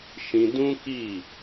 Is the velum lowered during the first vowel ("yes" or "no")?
yes